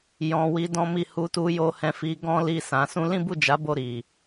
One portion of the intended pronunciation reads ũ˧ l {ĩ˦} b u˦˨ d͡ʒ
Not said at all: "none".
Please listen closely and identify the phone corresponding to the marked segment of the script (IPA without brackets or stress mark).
ĩ˦